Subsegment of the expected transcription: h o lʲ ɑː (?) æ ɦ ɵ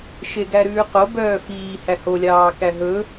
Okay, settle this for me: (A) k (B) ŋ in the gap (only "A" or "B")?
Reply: A